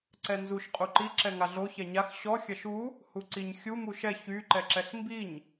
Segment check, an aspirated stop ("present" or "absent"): absent